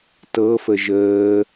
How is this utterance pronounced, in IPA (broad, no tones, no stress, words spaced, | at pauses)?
tɤfə ʒəː